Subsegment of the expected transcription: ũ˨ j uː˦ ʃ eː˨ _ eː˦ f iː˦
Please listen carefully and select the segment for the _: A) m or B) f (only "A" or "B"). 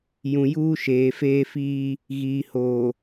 B